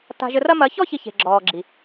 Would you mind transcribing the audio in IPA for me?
ta̤˧ʒɘ˧rɐ˦ mɐ˨˦çɔ˦ çi˦çe̤˨ ɡ͡ǁɔː˨ɡ͡ǁi˨

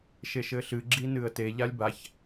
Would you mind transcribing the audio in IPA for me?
ʃeʃɘɬɨ ɡ͡ǁinɨə̯te ʎalʲbaç

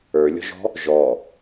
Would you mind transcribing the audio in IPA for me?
ə˞lʲɔ̤ʒɔ̤ | ʒɔ

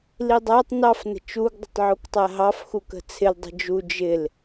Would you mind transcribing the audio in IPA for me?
lidˤætˤ nɑf nə̤t͡ʃuɡ dˤə̤tˤʕuktˤæɦɑf xukə̤t͡sʰɪl dˤə̤d͡ʒu d͡ʒɪl

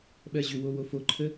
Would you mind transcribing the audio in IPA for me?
ɓɜʑʏwo wofoǃʰə

